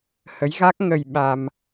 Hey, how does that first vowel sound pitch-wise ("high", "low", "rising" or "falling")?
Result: rising